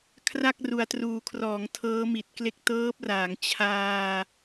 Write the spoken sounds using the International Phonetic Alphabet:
kʰ r a˥˩ k̚ r u˨˩ a̯ t r uː˨˩ kʰ r ɔː˩˦ ŋ tʰ ɤː˦˥ m i˨˩ t̚ k l e˦˥ k̚ t ɤː˦˥ p̚ r aː˩˦ ŋ t͡ɕʰ aː˧

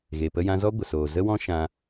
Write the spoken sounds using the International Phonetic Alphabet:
ɣ e˨ p ə˧ j ã˧ z ɔ˦ ɡʷ ə˨ s oː˨ z ə˦ w ɔ̃˦ ʃ ã˧

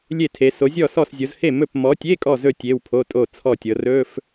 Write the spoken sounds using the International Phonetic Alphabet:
lʲ e˥˨ tʰ e˨˦ s o˨˦ zʲ ɔ˥˨ s ɔ˥˨ s zʲ o˨˦ z h e˥˨ m ɵ˥˨ p m ɔ˨˦ tʲ e˧˥˧ kʼ ɔ˥˨ z ɵ˥˨ tʲ e˧˥˧ w pʰ o˧˥˧ tʼ o˥˨ t͡sʰ ɔ˥˨ tʲ ɤ˨˦ r ɵ˧˥˧ f

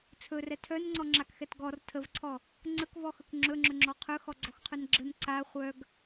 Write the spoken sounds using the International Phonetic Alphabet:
t͡sʰ ɵ r ɛ tʰ œ n ŋ͡ǀ ɔ ŋ͡ǁ a k x ɛ t ɡ ɔ r tʰ ə v ǀʰ ɔ | ŋ͡ǀ ə k v ɔ x ɵ k ŋ͡ǁ ɵ ŋ͡ǁ ɵ ŋ͡ǁ ɔ qʰ ɵ x ɔ ɡ͡ǀ ɔ x qʰ ɵ n ɡ͡ǁ ə n ǀ a χʷ œ ɡ

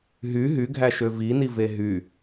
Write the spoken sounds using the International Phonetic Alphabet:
ɦ y ɦ y ɡʱ æ ʃ ø v i n i v e ɦ y

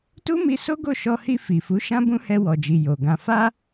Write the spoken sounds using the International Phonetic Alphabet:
t u˦ m i˧ s o˦ ɡ o˦˨ ʃ ɔ˧ h i˧ f i˨ f u˨˦ ʃ ã˦ b ũ˦ h ɛ˧ w ɔ˨ d͡ʒ i˨ j o˨ ɡ ã˧ f a˦

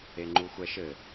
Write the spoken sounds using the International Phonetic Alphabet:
e ŋ͡ǃ u xʷ ɛ ʃ ɘ

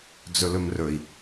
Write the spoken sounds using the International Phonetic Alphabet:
d͡z ɵ l ɵ m r ɵ i̯

